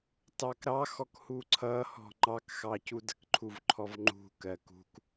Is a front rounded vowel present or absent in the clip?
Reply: absent